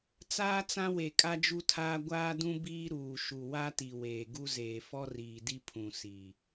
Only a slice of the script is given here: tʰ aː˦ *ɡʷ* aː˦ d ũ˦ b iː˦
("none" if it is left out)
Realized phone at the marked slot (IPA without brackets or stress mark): ɡʷ